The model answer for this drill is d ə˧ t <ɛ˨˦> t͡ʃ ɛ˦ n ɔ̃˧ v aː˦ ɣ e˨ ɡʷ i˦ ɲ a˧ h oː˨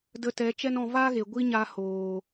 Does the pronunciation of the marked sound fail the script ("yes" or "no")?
no